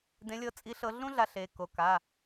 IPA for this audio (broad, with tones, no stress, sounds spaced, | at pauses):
d ẽ˨˦ lʲ ɤ˨˦ t͡sʼ i˨˦ ɬ ɤ˨˦ ɮ ũ˥ ɮ a˨˦ ɬ e˩˧˩ k o˩˧˩ k a˩˧˩